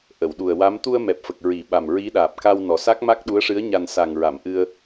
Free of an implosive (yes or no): no